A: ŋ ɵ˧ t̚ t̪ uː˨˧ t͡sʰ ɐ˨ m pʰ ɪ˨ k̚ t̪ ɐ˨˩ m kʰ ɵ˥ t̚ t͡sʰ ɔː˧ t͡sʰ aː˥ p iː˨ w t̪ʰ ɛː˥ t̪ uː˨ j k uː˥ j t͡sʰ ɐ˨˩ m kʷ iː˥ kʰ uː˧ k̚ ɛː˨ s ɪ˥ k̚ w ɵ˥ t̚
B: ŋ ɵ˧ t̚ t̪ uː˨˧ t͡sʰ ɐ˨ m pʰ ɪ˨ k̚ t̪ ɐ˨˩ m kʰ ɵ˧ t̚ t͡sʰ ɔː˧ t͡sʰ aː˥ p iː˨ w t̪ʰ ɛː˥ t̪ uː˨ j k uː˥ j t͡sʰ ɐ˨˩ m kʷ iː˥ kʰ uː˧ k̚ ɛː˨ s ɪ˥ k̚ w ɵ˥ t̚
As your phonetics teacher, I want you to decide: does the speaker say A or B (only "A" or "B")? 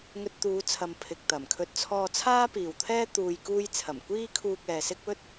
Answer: B